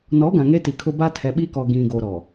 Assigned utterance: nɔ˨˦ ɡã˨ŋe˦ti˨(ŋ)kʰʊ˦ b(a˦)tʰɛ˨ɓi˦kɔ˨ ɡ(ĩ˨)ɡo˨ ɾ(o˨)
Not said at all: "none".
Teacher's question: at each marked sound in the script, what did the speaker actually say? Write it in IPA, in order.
none, a˦, ĩ˨, ɔ˨

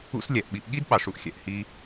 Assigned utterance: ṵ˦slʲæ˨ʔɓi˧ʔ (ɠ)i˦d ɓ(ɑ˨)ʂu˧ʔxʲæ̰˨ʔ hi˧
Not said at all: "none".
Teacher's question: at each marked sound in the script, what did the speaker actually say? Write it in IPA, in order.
ɠ, ɑ˨

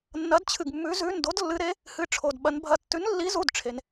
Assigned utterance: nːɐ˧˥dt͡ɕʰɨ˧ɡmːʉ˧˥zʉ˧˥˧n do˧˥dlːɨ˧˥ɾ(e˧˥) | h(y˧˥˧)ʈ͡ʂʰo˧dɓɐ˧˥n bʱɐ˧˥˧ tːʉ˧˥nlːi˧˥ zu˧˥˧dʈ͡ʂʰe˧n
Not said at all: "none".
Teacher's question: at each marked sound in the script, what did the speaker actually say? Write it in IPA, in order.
e˧˥, ɨ˧˥˧

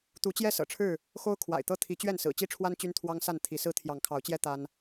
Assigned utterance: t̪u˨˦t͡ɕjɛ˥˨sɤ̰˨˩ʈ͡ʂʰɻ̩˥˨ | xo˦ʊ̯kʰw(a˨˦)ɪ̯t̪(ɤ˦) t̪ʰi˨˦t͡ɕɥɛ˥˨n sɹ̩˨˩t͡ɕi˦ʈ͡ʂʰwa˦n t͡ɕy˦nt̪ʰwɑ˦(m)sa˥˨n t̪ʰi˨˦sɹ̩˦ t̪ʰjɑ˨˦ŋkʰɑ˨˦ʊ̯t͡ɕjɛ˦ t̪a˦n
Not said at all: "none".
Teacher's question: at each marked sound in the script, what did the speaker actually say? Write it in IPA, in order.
a̰˨˩, ɤ˦, ŋ

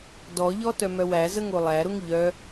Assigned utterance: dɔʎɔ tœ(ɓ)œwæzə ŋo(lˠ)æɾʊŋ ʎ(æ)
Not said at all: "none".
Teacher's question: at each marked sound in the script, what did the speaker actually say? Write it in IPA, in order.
m, lˠ, œ

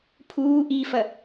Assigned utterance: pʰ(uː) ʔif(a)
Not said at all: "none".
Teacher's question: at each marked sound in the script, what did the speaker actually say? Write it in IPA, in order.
uː, ɐ

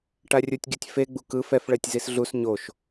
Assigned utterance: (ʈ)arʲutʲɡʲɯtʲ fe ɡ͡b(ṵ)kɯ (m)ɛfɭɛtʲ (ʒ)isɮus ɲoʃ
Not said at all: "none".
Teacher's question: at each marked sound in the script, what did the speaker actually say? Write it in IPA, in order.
ʈ, u, f, z

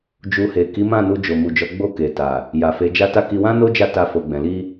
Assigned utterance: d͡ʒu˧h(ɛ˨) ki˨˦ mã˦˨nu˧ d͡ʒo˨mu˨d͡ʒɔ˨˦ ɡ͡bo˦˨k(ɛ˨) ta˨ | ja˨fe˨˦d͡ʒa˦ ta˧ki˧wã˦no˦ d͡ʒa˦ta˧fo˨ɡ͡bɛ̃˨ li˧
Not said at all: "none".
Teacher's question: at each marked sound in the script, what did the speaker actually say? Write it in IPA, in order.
e˨, e˨

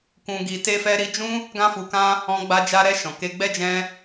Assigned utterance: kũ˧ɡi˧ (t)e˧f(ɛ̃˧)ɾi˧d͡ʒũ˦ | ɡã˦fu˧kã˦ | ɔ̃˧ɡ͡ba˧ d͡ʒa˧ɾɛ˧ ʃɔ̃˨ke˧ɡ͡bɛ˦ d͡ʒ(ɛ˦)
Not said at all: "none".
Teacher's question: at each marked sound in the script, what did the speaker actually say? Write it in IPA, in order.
t, ɛ˧, ɛ̃˦

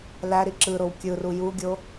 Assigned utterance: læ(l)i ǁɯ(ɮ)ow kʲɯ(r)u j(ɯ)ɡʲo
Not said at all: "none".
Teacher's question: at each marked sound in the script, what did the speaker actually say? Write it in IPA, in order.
ɾ, ɾ, r, u

